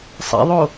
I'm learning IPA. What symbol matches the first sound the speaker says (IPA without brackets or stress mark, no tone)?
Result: sˤ